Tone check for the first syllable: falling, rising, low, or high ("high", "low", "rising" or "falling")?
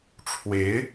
rising